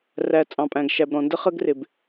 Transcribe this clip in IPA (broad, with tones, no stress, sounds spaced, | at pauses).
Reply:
r æ˨ t͡sʼ ɑ̃˨ pʼ æ̃˨ ɡ ʃ æ˨ b ɾ ɔ̃˨ n d ə˦ χ ə˦ ɡ r ɪ˨ b